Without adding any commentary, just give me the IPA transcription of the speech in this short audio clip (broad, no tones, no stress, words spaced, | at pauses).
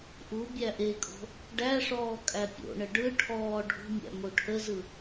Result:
ʔu bʲæʔekʼo̤ | ɖæʂɔː kʼæpʲo̰ɳə ɖɯ ʈʰɔː ɖʱṳmʲæ̰ moʈʰəzɯ